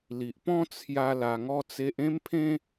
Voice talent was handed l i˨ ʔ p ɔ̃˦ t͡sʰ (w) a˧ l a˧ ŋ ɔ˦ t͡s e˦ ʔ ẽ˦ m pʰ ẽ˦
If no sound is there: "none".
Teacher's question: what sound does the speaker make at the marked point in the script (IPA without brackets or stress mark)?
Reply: j